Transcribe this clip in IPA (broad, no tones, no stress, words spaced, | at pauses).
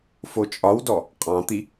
fot͡ʃʼɒwdɔ | qʼɑ̃t̪i